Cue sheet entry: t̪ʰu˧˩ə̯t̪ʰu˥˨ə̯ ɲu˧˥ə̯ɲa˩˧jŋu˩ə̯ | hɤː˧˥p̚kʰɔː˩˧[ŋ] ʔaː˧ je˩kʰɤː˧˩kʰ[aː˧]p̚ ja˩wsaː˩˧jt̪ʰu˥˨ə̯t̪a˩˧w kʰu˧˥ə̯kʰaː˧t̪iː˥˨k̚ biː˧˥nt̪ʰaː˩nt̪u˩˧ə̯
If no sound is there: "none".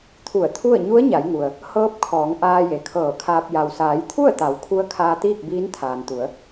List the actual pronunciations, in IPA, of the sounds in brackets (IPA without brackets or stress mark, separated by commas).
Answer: ŋ, aː˧